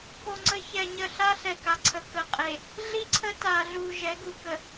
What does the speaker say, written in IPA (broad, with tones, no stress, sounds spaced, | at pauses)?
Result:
k o˨ ŋ͡ǀ ə˨ ç ɛ˨ ɲ ə˨ ɬ a˦ ɬ ɛ˨ k a˨ ǀʰ ə˨ k ə˨ qʼ e˨ | ɮ i˦ ǀʰ ə˦ t a˨ ɮ u˨ ʒ ɛ˨˦ ɡ u˨ k ə˨